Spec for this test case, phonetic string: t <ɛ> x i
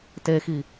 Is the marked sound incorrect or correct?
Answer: incorrect